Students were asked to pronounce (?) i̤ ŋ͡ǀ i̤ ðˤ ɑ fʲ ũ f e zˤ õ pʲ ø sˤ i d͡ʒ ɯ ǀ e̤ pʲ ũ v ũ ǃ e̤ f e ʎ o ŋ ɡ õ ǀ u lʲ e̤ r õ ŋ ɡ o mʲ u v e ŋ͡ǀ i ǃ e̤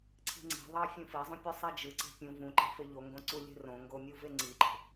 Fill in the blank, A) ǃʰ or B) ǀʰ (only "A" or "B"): B